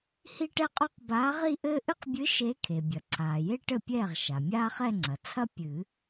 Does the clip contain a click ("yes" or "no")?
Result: yes